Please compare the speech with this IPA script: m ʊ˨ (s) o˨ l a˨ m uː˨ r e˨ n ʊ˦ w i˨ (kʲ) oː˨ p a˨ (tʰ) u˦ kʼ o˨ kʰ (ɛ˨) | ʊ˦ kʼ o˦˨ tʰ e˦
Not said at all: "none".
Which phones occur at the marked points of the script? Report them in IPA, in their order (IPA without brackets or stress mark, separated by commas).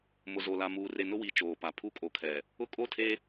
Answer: z, t͡ʃ, pʰ, ɛ˨